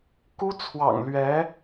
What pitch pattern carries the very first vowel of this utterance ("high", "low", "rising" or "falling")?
high